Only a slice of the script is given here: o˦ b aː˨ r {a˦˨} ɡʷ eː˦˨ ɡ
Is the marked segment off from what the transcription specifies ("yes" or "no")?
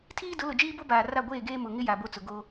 no